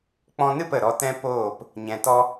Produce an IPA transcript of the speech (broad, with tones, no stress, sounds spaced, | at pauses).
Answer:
k͡p ɔ̃˧ n ɨ˦˨ p ə˨ ɾ ɔ˧ t ɛ̃˦ p oː˦˨ p | ɲ ɛ̃˧ t ɔ˦